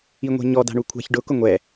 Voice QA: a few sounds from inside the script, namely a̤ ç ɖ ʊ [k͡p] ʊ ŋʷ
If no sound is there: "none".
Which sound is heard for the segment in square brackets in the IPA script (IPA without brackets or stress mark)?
k